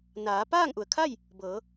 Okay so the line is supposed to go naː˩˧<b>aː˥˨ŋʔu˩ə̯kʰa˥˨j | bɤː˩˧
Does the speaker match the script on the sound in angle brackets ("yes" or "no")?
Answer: no